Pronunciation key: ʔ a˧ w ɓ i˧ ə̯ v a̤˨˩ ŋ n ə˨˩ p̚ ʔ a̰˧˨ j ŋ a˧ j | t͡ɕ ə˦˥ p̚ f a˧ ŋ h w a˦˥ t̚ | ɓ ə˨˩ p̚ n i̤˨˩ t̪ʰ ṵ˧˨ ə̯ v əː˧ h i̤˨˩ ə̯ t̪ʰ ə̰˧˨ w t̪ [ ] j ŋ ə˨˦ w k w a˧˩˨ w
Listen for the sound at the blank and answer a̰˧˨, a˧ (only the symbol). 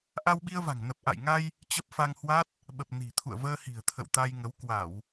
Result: a˧